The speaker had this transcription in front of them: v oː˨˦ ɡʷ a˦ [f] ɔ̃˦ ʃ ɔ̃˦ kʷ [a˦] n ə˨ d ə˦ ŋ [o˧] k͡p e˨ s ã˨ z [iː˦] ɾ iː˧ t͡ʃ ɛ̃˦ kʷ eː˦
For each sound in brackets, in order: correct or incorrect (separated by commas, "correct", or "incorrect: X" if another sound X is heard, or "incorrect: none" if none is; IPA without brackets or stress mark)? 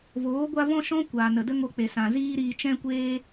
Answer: incorrect: v, incorrect: a˨, correct, correct